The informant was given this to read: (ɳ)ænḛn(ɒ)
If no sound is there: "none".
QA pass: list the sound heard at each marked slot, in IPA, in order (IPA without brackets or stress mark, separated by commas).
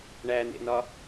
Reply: ɳ, ɒ